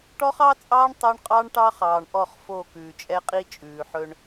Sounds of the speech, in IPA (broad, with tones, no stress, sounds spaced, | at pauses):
ʈ ɔ˦ χ ɑ˦ t͡sʼ ɑː˦ ɳ tˤ o˦ ɳ qʼ ɑ˦ ɳ ʈ ɑ˦ χ ɑː˨ ɳ ʔ ɔ˦˨ χ f o˦˨ k ʉː˨ t͡ʃʼ ɛ˦ qʼ i˦ t͡ʃʼ ʉː˨ ħ ɵ˦ ɳ